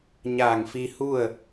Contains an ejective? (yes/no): no